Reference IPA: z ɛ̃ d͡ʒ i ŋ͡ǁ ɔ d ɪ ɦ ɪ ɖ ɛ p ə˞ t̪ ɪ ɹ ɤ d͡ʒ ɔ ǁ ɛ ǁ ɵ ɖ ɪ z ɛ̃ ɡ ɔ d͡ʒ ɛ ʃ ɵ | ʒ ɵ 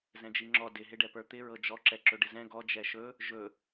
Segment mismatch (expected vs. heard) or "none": none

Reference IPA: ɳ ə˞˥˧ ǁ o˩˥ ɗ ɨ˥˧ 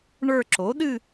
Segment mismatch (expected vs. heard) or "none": none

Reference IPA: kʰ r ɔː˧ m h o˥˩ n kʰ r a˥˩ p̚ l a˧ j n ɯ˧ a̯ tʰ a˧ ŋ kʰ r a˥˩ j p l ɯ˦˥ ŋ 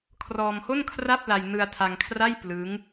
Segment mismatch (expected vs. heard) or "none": none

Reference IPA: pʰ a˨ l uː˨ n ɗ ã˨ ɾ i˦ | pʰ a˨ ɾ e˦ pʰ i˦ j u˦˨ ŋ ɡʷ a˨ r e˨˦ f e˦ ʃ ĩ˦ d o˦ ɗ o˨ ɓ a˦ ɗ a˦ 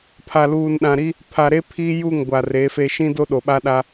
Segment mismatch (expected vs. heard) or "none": none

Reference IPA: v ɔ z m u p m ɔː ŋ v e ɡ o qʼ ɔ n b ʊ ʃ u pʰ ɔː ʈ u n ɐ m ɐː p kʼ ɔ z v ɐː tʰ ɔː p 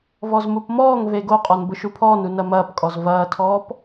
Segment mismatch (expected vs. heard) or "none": ʈ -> n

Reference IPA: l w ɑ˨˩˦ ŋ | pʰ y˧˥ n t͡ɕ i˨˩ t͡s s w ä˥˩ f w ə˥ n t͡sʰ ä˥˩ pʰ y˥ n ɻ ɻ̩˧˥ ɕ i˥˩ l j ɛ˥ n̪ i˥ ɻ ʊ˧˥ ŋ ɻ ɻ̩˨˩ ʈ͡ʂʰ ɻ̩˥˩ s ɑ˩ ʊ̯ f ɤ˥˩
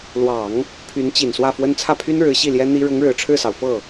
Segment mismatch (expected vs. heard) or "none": t͡s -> n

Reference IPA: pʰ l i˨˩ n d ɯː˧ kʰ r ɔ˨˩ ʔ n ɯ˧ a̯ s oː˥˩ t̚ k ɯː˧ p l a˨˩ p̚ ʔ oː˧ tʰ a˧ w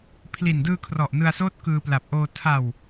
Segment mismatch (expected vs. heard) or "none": none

